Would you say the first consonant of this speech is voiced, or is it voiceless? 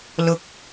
voiced